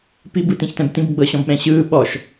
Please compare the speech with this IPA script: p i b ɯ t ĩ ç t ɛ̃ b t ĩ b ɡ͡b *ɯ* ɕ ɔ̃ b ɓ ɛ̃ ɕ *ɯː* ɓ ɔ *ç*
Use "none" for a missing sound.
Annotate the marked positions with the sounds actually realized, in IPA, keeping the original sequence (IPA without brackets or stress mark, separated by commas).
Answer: ɤ, ɯː, ʃ